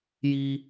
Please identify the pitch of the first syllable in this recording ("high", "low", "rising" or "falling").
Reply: high